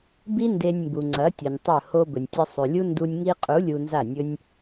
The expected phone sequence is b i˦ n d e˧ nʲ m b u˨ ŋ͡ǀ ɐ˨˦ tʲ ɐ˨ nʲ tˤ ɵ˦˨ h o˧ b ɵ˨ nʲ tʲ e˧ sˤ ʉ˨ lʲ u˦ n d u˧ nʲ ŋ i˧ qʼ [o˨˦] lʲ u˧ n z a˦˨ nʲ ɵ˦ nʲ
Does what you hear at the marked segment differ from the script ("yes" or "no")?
yes